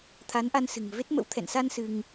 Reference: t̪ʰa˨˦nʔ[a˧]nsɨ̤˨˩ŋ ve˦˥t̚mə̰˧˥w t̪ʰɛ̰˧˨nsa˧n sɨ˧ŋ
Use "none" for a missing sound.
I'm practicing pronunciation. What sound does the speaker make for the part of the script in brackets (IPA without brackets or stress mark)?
a˧